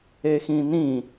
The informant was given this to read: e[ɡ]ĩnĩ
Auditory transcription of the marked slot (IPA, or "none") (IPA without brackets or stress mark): x